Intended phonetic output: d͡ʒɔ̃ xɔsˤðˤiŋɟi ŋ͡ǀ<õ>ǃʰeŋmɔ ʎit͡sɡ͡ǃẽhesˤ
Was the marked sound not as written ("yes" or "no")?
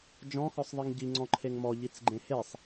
yes